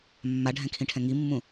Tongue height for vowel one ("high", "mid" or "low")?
low